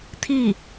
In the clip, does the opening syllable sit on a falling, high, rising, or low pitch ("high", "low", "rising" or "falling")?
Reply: falling